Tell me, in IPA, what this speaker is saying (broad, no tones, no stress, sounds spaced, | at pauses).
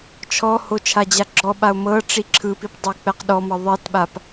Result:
t͡ʃʰ ɔ h o t͡ʃʰ a d͡ʑ a ɡ͡ǁ ɔ ɓ a o̯ m ɤ ʈ͡ʂ i ǁʰ ɯ p i p dˤ ɤ e̯ k͡p ɛ q ɗ ɔ m ɤ ðˤ i t ɓ a p